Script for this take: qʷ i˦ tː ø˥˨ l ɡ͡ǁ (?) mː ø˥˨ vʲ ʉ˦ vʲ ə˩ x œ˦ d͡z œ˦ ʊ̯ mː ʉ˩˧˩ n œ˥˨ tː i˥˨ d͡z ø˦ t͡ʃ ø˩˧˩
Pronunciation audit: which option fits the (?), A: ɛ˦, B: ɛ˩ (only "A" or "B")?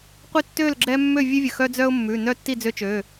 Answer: A